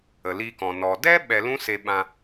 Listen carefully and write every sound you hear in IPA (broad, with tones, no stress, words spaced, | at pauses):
ə˨li˧kɔ̃˨ nɔ˨dɛ˦ ɓɛ˧lũ˦se˧ ɓã˧